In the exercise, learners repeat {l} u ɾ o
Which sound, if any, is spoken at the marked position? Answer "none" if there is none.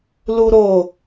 l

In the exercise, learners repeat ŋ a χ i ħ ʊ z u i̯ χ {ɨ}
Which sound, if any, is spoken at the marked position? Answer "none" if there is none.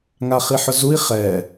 ɛ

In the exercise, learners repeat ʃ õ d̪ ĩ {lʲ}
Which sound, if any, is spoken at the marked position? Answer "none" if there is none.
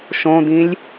lʲ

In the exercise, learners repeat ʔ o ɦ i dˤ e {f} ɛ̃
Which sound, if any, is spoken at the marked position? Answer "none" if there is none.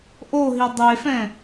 f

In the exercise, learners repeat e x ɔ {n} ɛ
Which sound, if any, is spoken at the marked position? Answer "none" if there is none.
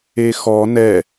n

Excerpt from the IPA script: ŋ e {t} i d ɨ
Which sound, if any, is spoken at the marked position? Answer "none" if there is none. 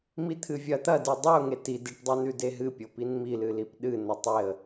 t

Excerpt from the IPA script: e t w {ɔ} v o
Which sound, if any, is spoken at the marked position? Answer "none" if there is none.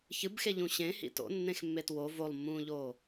o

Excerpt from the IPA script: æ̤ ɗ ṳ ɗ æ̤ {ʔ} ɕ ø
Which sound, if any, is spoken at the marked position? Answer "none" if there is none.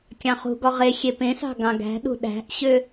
ʔ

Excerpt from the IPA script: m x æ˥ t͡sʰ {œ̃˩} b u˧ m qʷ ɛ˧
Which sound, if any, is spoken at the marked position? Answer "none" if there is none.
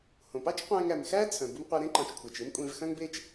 œ̃˩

